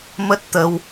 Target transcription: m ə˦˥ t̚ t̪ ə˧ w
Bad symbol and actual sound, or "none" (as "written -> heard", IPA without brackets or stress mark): none